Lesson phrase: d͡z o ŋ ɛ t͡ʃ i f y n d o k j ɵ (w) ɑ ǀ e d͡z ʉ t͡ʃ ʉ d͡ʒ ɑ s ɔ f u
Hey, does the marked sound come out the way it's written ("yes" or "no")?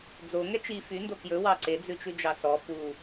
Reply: yes